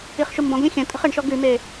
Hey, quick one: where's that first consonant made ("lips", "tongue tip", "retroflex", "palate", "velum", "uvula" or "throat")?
uvula